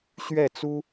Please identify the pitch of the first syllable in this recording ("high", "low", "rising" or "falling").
falling